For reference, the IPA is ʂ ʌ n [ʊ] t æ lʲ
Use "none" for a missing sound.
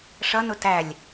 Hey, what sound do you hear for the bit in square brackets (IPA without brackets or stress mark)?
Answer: ʊ